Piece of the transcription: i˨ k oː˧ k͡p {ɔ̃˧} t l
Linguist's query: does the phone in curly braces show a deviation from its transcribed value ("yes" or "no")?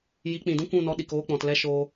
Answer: yes